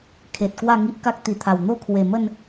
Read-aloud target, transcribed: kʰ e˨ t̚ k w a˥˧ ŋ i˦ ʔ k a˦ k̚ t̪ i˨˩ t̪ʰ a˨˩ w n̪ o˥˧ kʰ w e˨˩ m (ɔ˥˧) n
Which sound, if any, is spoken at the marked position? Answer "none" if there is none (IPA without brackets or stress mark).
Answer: ə˥˧